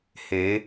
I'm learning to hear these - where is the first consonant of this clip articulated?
throat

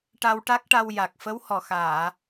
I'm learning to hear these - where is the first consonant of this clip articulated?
retroflex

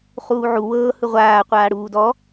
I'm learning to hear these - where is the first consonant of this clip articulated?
uvula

